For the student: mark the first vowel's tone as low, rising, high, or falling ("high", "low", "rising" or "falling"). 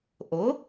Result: rising